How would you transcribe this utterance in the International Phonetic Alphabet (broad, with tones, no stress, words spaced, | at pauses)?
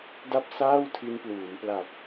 da˥˩p̚saː˥˩w tʰi˧npluː˩˦mpla˨˩p̚